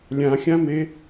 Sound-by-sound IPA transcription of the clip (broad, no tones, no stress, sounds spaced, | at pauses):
lʲ ã xʲ ã m e